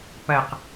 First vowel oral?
yes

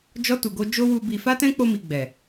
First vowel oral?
yes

